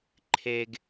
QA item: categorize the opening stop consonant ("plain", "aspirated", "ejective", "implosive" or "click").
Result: click